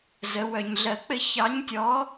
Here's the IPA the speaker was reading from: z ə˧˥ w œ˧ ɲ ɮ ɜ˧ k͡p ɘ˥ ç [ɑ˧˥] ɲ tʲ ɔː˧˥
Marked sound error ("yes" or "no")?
no